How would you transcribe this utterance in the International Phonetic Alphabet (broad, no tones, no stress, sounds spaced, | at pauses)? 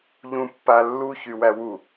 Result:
ʎ ũ pː a lː u ç y w æ w u